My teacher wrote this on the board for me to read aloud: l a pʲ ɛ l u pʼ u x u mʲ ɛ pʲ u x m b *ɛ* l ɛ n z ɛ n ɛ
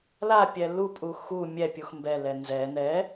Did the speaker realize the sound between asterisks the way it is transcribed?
yes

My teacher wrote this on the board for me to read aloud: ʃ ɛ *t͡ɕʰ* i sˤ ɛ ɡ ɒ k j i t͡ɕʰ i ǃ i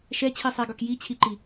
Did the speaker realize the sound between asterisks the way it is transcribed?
yes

